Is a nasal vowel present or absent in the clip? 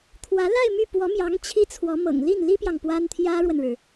absent